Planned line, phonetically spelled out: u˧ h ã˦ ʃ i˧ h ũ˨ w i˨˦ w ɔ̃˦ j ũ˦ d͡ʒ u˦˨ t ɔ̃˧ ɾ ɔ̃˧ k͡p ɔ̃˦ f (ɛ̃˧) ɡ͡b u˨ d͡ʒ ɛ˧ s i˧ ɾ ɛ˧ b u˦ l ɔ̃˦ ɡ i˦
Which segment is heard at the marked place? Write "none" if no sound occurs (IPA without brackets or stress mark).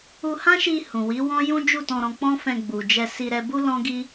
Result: ɛ̃˧